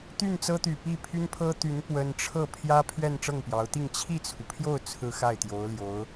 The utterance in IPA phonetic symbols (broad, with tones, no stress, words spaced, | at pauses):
t̪y˥˩nt͡sɤ˥t̪y˨˩ pi˥˩pʰy˥npʰɤ˥t̪y˧˥n pwə˥n ʈ͡ʂʰɤ˥˩ pʰjä˥pʰɥɛ˥˧n ʈ͡ʂɤ˥˩ŋpjɑ˧˥ʊ̯t̪i˥˧ŋ t͡ɕʰi˥˩t͡sʰu˩pʰjo˥˩ʊ̯ t͡sʰɹ̩˥xa˥˩ɪ̯t̪jo˧˥ʊ̯ljo˧˥ʊ̯